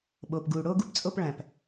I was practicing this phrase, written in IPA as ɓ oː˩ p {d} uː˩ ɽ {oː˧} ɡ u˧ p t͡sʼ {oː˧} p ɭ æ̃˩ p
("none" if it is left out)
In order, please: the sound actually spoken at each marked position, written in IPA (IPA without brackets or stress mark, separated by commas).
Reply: ɡ, oː˧, o˧